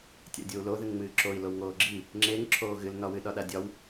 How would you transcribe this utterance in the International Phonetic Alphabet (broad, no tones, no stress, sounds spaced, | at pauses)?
tʲ a̰ dʲ o u̯ l o ð ɨ ŋ ŋ͡m ɨː ǁ o i̯ l o w ŋ oː ɡ͡ǁ i | ŋ͡ǁ e ŋ ǁʰ oː ɣ ɨ l n ɒ w ɨ ɗ ɒ ɗ a dʲ ɒ w